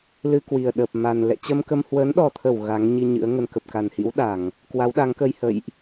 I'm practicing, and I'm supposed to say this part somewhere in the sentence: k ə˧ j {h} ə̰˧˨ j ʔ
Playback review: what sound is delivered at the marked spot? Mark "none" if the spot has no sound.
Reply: h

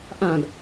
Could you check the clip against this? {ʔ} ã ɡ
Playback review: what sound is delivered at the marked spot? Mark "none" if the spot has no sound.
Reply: ʔ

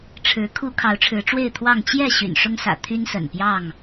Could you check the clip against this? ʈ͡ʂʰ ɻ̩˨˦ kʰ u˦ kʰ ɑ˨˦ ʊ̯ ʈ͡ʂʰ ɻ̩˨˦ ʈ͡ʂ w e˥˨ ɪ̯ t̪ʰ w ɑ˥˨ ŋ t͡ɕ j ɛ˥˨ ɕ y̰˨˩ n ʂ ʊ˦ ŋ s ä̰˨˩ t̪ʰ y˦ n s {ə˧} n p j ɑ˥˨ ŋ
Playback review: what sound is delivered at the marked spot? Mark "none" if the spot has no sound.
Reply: ə̰˨˩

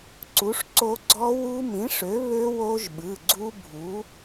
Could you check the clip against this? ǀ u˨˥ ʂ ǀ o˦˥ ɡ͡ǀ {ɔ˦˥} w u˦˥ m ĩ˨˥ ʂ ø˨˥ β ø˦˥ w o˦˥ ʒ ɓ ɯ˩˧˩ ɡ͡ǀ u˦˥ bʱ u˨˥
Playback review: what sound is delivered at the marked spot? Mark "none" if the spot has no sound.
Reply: ɔ˦˥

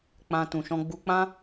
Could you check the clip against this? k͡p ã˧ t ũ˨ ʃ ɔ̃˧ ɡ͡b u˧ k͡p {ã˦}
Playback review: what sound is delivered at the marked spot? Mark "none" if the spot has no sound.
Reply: ã˦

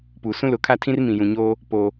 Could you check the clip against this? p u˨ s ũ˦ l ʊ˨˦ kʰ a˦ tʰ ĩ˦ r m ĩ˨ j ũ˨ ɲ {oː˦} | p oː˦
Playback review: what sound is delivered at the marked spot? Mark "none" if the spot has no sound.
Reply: oː˦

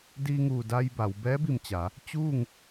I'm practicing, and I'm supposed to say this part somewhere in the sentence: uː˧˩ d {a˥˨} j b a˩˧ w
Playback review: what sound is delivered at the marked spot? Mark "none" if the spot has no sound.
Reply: a˧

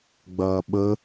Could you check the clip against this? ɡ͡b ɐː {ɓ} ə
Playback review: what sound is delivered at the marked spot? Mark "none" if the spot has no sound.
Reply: ɓ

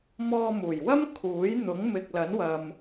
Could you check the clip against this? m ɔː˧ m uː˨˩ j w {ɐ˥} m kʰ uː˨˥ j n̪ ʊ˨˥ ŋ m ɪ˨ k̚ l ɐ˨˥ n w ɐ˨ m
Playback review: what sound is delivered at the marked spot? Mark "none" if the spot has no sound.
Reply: ɐ˥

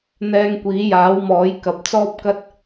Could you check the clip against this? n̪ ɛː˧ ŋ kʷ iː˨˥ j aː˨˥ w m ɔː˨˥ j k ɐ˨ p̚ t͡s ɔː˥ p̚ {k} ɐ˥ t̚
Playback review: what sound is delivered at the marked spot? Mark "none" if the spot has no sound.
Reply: k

